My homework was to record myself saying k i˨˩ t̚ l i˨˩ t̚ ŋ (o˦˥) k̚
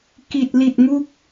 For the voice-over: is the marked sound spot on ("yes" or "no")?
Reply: no